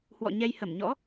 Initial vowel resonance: oral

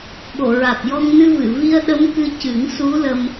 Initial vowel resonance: oral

